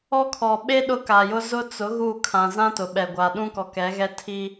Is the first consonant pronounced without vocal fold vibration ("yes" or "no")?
yes